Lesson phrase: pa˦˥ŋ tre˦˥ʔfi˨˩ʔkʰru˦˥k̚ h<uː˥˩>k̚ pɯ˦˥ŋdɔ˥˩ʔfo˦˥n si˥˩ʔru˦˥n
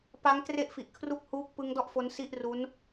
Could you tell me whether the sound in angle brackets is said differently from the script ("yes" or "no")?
no